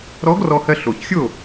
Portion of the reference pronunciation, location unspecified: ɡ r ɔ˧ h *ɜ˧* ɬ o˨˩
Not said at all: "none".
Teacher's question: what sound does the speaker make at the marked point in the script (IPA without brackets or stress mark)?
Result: ɜ˧